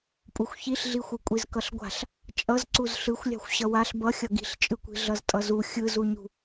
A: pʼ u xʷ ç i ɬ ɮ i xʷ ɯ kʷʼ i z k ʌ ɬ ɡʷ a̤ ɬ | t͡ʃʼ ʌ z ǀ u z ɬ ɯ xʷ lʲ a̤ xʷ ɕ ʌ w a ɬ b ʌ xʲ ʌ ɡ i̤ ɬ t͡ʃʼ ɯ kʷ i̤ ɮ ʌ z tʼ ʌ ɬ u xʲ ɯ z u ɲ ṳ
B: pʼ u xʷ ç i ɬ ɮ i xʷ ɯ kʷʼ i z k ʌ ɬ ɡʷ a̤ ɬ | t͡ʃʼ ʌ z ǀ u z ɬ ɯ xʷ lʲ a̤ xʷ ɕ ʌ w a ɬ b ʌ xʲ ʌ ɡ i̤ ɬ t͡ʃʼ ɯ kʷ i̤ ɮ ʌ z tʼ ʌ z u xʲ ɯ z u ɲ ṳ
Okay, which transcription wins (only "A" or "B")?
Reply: B